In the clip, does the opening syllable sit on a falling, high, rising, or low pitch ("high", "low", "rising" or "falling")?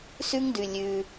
high